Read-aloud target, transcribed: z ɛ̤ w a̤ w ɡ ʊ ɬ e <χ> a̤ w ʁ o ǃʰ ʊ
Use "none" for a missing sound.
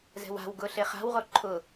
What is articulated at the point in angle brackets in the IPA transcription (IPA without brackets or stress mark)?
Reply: χ